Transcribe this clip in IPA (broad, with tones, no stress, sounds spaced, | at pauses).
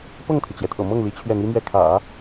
p ɤ˥˩ ŋ t̪ʰ y˩ t͡ɕ j ɛ˩ t̪ʰ ɤ̰˨˩ m ɤ˥˩ ŋ l i˧˥ t͡ɕʰ ɥ ɛ˥˩ n̪ i˥ m ɥ ɛ˥˩ kʰ ä̰˨˩˦